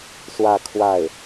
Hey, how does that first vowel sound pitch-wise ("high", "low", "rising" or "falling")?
falling